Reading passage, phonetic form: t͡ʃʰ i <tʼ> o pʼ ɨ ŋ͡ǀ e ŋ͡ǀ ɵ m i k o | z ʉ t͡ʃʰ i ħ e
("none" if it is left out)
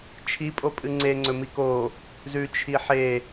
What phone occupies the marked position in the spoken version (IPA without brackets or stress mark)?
pʼ